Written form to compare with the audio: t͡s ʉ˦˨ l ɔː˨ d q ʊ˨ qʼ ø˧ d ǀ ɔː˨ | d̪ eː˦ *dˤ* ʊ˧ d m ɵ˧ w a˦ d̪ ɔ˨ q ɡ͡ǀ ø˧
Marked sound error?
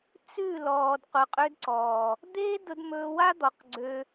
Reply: yes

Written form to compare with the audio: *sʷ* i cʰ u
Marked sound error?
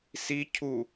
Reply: yes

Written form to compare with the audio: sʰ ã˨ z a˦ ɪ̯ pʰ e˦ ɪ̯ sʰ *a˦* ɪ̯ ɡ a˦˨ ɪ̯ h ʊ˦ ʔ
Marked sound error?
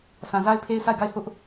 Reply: yes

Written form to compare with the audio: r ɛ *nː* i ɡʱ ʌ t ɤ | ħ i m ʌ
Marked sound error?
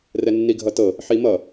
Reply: no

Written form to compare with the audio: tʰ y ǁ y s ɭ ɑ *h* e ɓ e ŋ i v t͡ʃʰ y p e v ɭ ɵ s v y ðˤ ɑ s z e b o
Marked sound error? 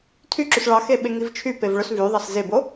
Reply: yes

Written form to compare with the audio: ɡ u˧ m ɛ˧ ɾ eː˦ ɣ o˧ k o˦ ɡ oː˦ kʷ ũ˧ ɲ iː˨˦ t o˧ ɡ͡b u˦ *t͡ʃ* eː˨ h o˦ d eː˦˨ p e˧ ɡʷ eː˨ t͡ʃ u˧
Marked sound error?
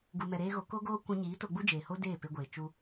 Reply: yes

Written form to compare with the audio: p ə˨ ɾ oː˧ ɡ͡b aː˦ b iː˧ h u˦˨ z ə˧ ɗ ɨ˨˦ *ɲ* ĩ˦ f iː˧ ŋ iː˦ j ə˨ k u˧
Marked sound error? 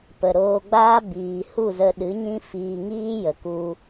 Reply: no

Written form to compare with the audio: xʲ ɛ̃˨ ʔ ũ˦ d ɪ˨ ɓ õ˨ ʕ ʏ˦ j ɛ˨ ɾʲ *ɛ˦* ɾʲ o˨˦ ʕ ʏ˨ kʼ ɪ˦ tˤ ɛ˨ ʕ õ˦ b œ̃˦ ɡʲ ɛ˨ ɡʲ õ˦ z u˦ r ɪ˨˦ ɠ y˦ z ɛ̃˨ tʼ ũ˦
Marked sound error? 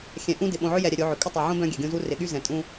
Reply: yes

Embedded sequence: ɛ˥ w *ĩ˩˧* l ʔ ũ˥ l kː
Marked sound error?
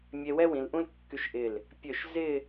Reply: no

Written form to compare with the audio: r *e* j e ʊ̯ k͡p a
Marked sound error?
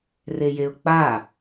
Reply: no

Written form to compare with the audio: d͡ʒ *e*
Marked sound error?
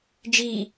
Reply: yes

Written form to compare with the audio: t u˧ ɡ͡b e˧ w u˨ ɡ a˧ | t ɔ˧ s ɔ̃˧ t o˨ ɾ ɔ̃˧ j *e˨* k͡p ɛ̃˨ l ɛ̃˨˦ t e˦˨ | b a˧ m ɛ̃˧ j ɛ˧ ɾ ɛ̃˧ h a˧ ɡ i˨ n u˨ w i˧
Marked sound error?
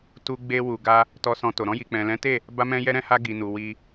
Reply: yes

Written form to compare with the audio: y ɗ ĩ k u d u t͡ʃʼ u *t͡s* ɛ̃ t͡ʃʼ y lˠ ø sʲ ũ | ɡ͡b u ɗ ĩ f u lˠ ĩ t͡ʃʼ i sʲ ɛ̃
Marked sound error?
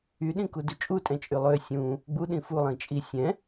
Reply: yes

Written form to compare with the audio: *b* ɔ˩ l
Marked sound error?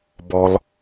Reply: no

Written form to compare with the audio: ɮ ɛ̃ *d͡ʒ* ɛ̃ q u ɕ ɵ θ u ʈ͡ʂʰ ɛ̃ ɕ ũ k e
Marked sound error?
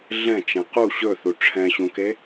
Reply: yes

